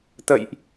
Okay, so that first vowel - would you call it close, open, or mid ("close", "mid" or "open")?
mid